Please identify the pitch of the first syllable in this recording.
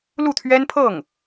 falling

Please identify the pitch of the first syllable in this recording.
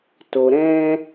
low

